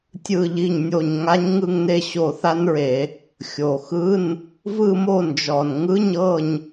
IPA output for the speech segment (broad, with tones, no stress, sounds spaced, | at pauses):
tʲ ɯ˦˨ ʎ i˦˨ ɲ nʲ o˦˨ ɲ ŋ a˧˥ ɲ ŋ ɯ˦˨ ŋ n e˦˨ ɕ o˦˨ θ a˥ n ɹ e˧˩˧ | xʲ o˨˩ x ɯ˧˥˧ n | v ɯ˦˨ m o˦˨ n d͡ʒ ɔ˨˩ n ŋ ɯ˧˥˧ ɲ ɤ˦˨ ɲ